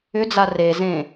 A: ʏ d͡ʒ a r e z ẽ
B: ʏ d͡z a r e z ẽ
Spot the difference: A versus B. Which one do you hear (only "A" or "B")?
B